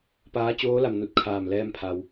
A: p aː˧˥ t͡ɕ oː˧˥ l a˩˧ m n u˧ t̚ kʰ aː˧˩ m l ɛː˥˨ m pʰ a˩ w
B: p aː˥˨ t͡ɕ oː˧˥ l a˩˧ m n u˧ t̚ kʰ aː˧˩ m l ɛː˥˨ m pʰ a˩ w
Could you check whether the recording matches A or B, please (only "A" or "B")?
A